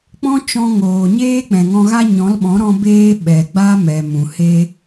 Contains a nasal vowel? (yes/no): yes